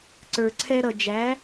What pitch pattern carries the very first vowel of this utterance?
low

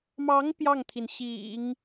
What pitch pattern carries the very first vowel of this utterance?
rising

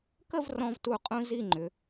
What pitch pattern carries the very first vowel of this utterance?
falling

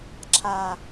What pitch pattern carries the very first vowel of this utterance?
low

